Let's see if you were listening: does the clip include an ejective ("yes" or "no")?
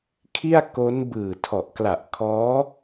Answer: no